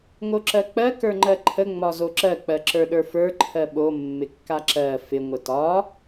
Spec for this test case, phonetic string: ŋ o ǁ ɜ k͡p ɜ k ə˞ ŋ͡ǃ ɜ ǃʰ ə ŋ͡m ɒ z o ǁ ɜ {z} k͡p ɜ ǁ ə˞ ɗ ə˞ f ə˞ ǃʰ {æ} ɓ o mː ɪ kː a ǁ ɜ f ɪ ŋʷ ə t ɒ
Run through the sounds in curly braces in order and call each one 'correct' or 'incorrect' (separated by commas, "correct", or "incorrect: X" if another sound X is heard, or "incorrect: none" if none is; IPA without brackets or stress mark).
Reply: incorrect: none, incorrect: ɜ